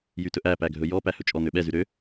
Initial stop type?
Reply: plain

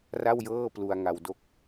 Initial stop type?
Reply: plain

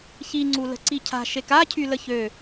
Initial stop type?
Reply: click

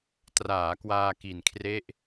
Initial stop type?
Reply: plain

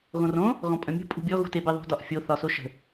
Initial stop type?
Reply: ejective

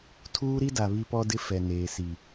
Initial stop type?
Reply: aspirated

